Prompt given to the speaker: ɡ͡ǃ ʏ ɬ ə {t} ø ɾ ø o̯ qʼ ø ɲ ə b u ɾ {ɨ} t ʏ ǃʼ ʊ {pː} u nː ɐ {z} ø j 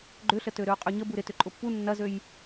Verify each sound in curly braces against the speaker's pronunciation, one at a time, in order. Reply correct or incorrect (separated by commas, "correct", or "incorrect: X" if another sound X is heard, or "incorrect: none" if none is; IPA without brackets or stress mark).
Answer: correct, incorrect: ɪ, correct, correct